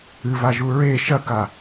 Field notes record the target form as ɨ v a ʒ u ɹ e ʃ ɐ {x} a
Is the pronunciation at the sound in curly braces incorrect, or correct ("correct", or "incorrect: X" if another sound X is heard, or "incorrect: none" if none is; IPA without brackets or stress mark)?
incorrect: k